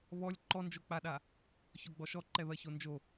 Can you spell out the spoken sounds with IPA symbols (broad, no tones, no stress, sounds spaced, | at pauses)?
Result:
β ɔ lʲ ǃ ɔ n d͡ʒ o k͡p a ɗ a | ç ɔ ɡ͡b ɔ ʃ ɔ ǃ ɛ β ɜ ç o n d͡ʒ o